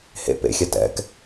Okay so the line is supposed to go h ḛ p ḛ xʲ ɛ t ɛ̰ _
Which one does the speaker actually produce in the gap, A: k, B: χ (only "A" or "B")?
A